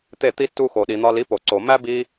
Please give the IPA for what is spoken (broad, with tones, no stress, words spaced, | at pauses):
t̪e˥˩t̪i˥ tːu˧ xo˩ɗi˩n̪ɒ˧ li˩˥po˩ ǀo˩ mæ˥bi˧